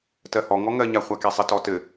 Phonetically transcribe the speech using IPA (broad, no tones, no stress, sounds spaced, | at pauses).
t ɜ h ɔ ŋ ɔ ŋ ɜ ɲ a χʷ a k e sˤ ɘ t ɔ t ɘ